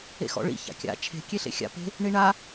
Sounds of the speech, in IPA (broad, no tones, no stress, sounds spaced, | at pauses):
ḛ x ɔ̰ ɭ ḭ ç a̰ kʲ a̰ t͡ʃʰ e̤ kʲ e ɬ ḛ xʲ a̰ p e̤ | ɳ i ɳ a